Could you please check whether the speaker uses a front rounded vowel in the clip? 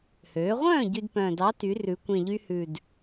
yes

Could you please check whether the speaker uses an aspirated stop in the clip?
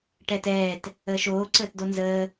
no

